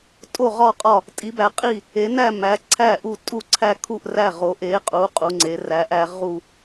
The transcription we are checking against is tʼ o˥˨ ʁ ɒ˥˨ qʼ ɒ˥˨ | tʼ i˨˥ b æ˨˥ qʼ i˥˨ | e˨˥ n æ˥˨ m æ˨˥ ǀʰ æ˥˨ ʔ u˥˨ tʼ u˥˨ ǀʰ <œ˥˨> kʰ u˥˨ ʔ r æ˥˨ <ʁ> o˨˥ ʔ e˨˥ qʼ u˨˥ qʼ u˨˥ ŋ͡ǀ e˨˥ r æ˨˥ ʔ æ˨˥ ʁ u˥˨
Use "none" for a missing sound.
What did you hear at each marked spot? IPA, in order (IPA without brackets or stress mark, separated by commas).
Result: æ˥˨, ʁ